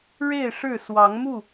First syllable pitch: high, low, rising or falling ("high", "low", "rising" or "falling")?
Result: falling